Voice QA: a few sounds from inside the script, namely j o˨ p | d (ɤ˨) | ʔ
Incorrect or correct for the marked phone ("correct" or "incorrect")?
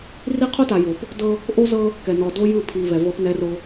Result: incorrect